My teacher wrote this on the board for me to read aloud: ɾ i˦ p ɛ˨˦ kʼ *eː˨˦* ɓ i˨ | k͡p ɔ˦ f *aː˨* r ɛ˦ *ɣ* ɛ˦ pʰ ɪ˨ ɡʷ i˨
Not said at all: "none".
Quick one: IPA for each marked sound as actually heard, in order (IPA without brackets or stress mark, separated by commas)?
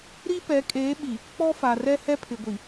eː˨˦, a˨, h